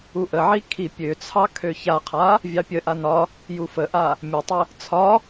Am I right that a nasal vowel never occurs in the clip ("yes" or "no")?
yes